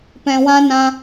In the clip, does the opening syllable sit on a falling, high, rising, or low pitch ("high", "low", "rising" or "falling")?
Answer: low